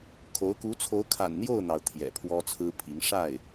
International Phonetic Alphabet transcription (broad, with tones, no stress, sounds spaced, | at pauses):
kʰ o˧˥ ʊ̯ k u˧˥ t͡sʰ o˧˥ ʊ̯ kʰ a̰˨˩ n n̪ j o˥˩ ʊ̯ n̪ ɑ˩ ʊ̯ t̪ʰ j ɛ̰˨˩ pʰ w ɔ˥ t͡sʰ ɹ̩˥ pʰ i˧˥ ŋ ʂ a˥˩ ɪ̯